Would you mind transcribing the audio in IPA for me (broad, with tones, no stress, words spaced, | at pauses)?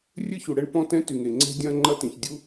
rʲɨ˥çu˩ɽɛ˥ɳ pɔ̃˥tɛ̃˥ ty˩ŋe˩ŋ͡ǀɛ̤˥ dʲɐ̃˥ ŋ͡ǃɐ˥tĩ˩ç dʲu˥